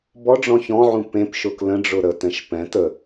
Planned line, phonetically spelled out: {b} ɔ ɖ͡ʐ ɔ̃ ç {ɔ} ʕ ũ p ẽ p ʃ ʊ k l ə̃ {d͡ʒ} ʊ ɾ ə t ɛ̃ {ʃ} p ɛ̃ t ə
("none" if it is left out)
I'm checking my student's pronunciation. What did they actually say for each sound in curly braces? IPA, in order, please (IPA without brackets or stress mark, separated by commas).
b, ɔ̃, ɖ͡ʐ, ʃ